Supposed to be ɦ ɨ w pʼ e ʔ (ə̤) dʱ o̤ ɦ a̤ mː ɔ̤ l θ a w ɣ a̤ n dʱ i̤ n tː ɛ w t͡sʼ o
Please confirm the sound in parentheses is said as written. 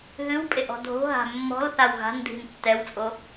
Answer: no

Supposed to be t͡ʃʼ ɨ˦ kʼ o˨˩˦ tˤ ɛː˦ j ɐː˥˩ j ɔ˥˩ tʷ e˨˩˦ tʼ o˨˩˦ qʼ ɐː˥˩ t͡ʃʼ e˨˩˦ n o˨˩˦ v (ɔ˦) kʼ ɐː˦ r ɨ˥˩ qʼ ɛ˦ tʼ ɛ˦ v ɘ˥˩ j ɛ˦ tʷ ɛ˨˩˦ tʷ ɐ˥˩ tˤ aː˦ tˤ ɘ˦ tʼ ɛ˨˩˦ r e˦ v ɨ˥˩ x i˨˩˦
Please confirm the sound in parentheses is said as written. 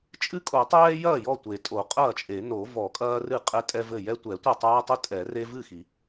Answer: no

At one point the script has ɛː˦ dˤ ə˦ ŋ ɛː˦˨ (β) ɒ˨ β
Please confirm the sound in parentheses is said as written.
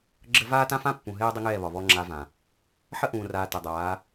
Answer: yes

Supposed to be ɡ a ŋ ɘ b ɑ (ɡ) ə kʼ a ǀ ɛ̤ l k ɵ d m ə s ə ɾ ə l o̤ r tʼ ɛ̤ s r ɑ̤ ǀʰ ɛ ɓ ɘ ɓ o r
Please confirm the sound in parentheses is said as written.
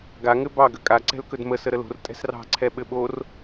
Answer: yes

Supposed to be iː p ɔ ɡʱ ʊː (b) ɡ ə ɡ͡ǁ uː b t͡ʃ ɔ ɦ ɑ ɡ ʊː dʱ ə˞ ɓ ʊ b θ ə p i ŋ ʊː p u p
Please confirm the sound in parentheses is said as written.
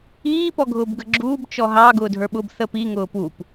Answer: yes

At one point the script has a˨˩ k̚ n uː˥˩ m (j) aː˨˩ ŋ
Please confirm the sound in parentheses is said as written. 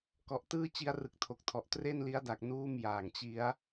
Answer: yes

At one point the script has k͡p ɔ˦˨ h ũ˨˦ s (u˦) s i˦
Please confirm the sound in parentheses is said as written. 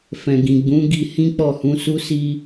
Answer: yes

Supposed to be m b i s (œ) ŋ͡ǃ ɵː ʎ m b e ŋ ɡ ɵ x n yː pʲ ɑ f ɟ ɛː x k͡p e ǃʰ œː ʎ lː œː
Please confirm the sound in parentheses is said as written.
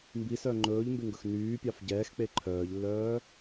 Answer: yes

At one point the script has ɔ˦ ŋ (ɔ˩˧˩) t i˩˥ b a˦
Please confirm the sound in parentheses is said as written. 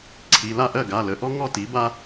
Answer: no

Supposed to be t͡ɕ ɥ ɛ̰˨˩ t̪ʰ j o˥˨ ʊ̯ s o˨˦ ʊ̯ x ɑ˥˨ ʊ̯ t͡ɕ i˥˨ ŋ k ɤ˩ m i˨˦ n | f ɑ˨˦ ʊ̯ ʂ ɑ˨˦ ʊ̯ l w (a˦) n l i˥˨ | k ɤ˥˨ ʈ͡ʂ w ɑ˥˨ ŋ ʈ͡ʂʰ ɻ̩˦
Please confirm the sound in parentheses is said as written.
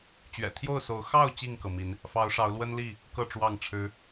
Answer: no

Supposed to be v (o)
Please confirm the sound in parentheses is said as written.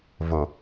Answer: yes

